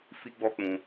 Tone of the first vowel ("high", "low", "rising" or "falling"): high